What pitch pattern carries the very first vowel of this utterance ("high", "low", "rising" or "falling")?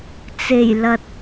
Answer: low